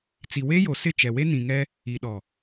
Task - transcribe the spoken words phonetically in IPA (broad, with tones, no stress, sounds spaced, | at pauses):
t͡s i˨ w e˦ j o˨ s ɪ˦˨ t͡ʃ ɛ˨ w e˦ n ĩ˨ ŋ ɛ˦ | i˨ ɗ ɔ˨